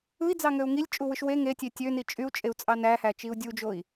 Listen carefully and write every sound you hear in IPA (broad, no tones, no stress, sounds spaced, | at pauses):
ɯ i̯ d͡z ɑ ŋ ø u̯ ŋ i lʲ t͡ʃʼ u w ɯ ʃ w e ŋ e tʲ e tʲ ø n i t͡ʃʼ y u̯ t͡ʃʼ e u̯ t͡sʼ ɑ n æ h æ t͡ʃ i u̯ dʲ u d͡ʒ o i̯